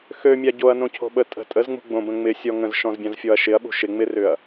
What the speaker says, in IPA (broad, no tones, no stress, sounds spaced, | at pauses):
x ø mʲ a ɟ o ɐ̯ n õ cʰ o̤ ɓ ə tʼ ə̤ tʼ ə z ŋ͡m ṳ ɡ͡b õ b ə̃ ŋ͡m ɪ sʲ ɔ ŋ ə̃ z ʃ ɔ̃ z bʲ ã z fʲ ɔ ɐ̯ ʃ ɪ ɐ̯ ɓ ṳ ʃ ɪ ŋ͡m ɪ r ʏ ɐ̯